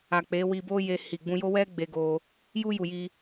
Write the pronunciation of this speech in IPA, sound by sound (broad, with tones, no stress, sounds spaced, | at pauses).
a˨ k͡p e˨˦ w i˧ b o˦ j e˧ h i˨ ɡ͡b ũ˧ j o˦ w ɛ˦ ɡ͡b e˧ ɡ o˧ | j u˦ j u˧ j i˦